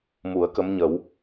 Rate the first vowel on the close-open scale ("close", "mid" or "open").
close